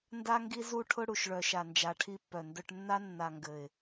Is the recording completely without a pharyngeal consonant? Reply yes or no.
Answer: yes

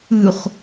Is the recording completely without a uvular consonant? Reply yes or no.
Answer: no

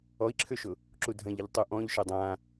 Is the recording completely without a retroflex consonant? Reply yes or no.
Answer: yes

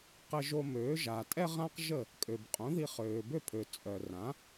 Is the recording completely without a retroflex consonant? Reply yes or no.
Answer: yes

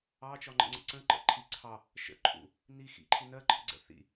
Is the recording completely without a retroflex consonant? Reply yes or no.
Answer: yes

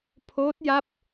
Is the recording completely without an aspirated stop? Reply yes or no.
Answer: no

